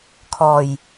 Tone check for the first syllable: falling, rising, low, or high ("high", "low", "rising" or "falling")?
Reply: low